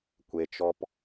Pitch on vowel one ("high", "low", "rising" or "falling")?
low